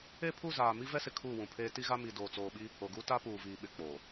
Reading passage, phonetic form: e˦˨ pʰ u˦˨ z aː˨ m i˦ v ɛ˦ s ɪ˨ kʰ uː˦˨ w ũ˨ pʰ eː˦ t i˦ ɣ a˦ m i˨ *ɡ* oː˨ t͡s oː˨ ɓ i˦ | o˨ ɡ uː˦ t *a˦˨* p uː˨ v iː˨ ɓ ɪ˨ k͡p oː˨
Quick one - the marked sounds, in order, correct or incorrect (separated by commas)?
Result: incorrect, incorrect